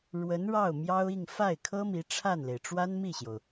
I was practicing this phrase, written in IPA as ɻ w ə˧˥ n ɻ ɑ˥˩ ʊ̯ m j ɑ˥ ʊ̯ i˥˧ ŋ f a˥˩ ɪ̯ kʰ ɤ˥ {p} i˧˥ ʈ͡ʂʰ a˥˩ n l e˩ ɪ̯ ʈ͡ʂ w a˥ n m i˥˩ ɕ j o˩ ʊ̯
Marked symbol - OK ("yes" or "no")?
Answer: no